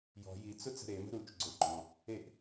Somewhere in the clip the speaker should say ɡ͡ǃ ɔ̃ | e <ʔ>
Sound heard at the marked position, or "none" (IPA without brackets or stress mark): ʔ